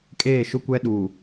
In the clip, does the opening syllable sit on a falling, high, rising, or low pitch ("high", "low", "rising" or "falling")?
falling